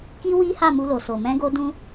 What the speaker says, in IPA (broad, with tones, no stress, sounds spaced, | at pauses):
k i˦ w i˦ h a˦˨ m u˧ l o˨ s o˨ m ɛ̃˧ ɡ o˧ d ũ˦